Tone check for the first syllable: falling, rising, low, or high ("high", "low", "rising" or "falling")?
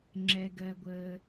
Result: low